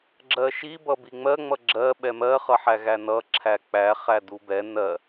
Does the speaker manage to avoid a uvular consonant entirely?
no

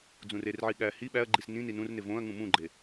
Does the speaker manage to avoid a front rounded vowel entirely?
yes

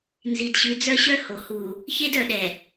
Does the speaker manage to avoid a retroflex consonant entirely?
yes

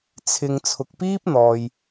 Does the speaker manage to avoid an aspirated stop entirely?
no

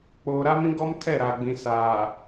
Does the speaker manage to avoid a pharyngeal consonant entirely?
yes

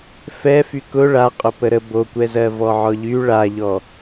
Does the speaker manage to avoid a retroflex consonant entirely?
no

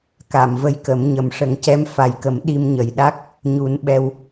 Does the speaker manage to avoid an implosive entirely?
no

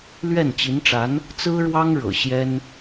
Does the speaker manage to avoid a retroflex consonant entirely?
no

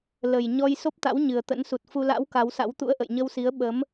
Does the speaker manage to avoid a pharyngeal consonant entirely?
yes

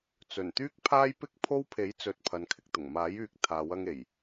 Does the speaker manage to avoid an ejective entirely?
yes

